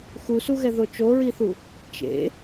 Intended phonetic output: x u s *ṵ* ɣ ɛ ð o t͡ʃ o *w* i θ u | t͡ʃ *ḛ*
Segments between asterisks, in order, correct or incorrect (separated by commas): incorrect, incorrect, correct